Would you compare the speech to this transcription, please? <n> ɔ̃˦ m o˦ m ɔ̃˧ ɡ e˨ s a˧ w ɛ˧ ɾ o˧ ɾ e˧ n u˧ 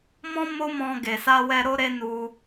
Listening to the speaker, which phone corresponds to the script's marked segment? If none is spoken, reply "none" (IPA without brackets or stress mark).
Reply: m